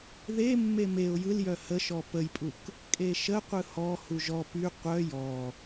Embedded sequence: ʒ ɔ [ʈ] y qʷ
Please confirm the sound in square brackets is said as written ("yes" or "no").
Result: no